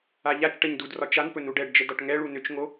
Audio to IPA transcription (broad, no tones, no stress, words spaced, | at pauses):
aʎat͡ʃʈəɲ dudrɒ t͡ʃanpɵ nuɖɛɖd͡ʒə dɒʈŋɛɭu nʏt͡ʃŋo